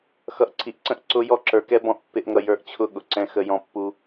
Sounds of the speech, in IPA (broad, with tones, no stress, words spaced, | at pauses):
xʌ˨ʔǀʰi˨ʔǀə̃˦ʔ ǀʊ˧jɔ˧ǁə˞˨kɛ˦ bɔ̃˦ʔpːɪ˦ʔŋʌ˧ jə˞˧ʔt͡ɕʰʊ˦˨ ɠʊ˨ǀɛ̃˧ xə˧jɔ̃˧ pːu˧